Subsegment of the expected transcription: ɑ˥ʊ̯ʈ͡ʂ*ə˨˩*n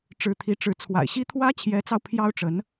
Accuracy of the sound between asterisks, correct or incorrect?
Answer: incorrect